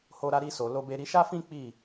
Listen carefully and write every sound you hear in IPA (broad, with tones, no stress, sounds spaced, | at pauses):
h o˧ ɾ a˧ ɾ i˧ s o˨ l o˧ b e˧ ɾ i˧ ʃ a˦ f ĩ˦ k͡p i˦˨